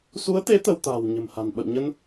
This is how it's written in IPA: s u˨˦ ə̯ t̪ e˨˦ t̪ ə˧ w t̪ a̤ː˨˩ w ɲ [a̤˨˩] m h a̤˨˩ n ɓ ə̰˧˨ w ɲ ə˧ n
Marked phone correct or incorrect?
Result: incorrect